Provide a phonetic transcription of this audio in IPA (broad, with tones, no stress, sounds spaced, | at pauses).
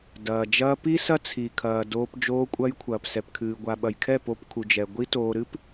d ɐː˨ d͡ʒ ɐː˧ p i˦ s ɐ˦ t͡sʰ i˨ kʰ ɐː˨ d oː˧ p d͡ʒ oː˧ kʷʼ ɐ˧ j kʷʰ ɐː˨ p s ɛ˨ p kʰ ɨː˨ ɡʷ a˨ ɓ ɐ˨ j kʰ ɛ˦˨ p o˧ p kʰ u˨ d͡ʒ ɛ˨ ɡʷ i˦ t oː˧ ɾ ɨ˦ p